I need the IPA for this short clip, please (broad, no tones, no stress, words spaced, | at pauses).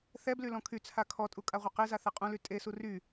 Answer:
θɛbly lɔ̃kʰyt͡sʰa kʰɔtʼu kʼaʁʷɛqeza θɛqʼũly tʼesu ry